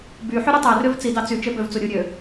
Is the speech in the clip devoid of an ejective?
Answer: yes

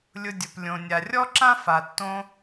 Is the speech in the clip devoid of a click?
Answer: no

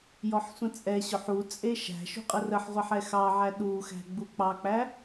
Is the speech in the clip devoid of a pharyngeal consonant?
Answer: no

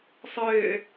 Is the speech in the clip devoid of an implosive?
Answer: yes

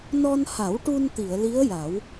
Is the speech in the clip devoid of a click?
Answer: yes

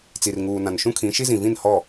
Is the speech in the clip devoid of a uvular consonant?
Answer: yes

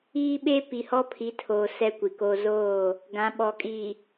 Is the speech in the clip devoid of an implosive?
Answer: no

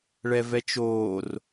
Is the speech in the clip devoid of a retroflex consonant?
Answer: no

